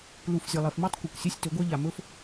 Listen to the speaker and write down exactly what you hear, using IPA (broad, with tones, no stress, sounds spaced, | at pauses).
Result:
l u˨ f zʲ ɵ˨ lˠ e˨ f m i˦ tˤ kʷ ɐ˨ kʷ sʲ e˦ sʲ t ɵ˨˦ ɡʷ ɐ˦ ʎ a˨ m ɵ˦ f